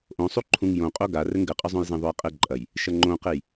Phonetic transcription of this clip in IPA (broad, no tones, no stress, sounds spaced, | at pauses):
ʔ õ sˤ u ǃʰ ũ ŋ j õ qʼ o ɡ a r ɘ ŋ ɡ ɘ qʼ ɐ zˤ õ j z ẽ ðˤ o j qʼ ɘ ǃʼ ɐ j | ʃ ɐ ŋ͡ǃ õ q e j